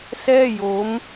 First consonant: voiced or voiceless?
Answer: voiceless